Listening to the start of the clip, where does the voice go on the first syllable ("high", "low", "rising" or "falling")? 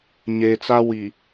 low